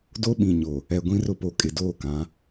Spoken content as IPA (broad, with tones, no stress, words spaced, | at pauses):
do˦ɓĩ˨ ɲo˨ | ɛ˨ ɡʷĩ˦rʊ˦po˨ kʼɪ˨doː˦˨kã˨˦